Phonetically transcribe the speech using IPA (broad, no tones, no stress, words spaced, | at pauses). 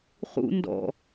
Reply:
χṵ ndɔ̰